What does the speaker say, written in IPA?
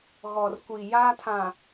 ɣ ɔ˨ r kʷ i˨ j aː˦ tʰ ã˨

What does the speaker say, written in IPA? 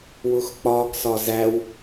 w ʊ x k͡p ɒ ɡ s ɒ z æ w

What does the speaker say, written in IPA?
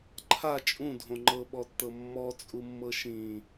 ǃʰ a t͡ʃʼ ũ dʱ õ ŋ͡ǃ ɤ ɓ ɔ tː ɤ mː ɔ t͡sʼ u mː ɤ ʃ ĩ

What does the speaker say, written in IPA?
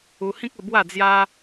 u˧ h ĩ˦ k̚ ə˧ b w a˥˧ d͡z j a˦

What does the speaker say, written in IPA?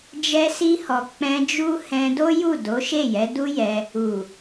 d͡ʒ ɛ˧ s i˧ h ɔ˨ k͡p ɛ̃˧ d͡ʒ u˦ h ɛ̃˧ d o˦ j u˦˨ d o˨˦ ʃ e˦˨ j ɛ˨˦ d u˦ j ɛ˧ | u˨

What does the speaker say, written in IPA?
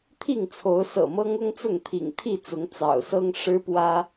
t̪ʰ i˥˨ ŋ t͡sʰ o˨˦ ʊ̯ s ɤ̰˨˩ m ɤ˦ ŋ ʊ˦ ŋ t͡s ʊ˥˨ ŋ t̪ʰ ḭ˨˩ ŋ t̪ʰ i˥˨ t͡s ʊ˨˦ ŋ t͡s ɑ̰˨˩ ʊ̯ s ɤ˦ ŋ ʂ ɻ̩˦ p w ä˦

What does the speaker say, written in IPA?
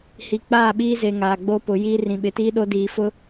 h i˨ k͡p aː˦˨ ɓ iː˦ z e˨ ŋ aː˨ ɡ͡b o˦ p ʊ˨˦ j iː˦ r ĩ˨ ɓ ɪ˨ t iː˦ ɗ o˦ d iː˨ f ʊ˦

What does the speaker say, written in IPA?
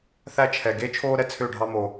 θ æ˦ t͡ʃʰ ɛ˨ ɡ e˦ t͡ʃʰ oː˦ ɾ ɛ˦ t͡sʰ ø˦˨ ɖʱ ɑ˦ m o˨

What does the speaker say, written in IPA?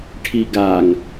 ʈʰ i ɡ a ŋ

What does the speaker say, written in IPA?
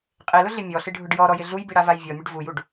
qʼ e l ʊ ɮ ɪ mʲ ɔ ɬ ɪ ɖʱ ʊ ɖ j ɔ ɾ ɔ j ɪ ɮ u j b i ɽ a v a j vʲ ɔ mʲ ʊ ɖ v u j u ɖ

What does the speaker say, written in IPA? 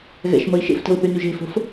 ɣ ɛ̰ ʃ m ə i̯ ʃ ḛ f t ə̤ u̯ θ y n y ʒ e̤ f ə̤ f

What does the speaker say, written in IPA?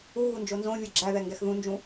u ɣ u n d͡ʒ o n z õ vʲ o ɡ͡ǁ æ ð ɛ ŋ ɡ ɛ x ð ũ n d͡ʒ ũ

